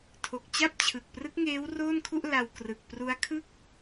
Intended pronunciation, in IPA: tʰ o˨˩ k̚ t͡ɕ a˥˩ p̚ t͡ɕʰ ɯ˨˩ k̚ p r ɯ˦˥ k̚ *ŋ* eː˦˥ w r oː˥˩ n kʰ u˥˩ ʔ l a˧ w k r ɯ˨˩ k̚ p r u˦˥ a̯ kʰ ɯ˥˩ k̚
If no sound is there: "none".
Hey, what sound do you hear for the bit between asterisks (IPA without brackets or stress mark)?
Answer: ŋ